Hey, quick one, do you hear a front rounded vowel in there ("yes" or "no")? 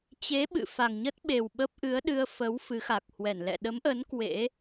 no